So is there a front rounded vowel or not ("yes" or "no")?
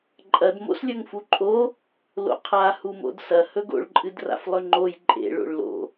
no